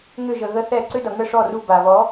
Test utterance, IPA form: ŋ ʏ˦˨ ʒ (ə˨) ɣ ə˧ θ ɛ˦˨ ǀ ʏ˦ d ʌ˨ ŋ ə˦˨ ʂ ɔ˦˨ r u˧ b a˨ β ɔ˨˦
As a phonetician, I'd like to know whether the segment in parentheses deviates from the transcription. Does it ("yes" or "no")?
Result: no